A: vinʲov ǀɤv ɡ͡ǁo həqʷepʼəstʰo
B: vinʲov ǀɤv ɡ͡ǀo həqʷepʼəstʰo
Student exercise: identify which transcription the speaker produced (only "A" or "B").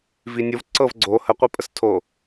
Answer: B